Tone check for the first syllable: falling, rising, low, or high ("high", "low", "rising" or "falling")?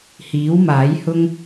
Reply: rising